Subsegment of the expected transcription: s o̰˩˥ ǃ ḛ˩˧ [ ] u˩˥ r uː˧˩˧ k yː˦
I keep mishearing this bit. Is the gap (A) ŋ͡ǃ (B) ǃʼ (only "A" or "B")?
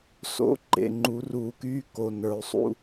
A